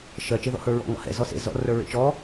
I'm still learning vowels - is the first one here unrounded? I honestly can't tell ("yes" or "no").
yes